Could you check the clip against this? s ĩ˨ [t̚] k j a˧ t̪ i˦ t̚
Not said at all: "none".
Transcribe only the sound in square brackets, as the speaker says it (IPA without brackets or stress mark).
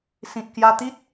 t̚